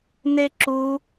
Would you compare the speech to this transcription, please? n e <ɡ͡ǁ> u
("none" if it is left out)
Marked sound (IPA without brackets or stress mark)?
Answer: ǁ